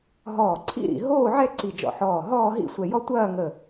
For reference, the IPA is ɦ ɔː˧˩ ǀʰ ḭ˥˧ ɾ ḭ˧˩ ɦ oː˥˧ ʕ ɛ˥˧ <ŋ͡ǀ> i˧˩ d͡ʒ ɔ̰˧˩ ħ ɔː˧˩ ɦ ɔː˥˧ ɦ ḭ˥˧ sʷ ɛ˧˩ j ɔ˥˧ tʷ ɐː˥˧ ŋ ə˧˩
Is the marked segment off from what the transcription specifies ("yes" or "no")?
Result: yes